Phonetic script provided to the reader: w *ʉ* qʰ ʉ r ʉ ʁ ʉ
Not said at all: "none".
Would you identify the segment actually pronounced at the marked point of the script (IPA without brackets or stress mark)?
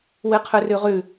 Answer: ɨ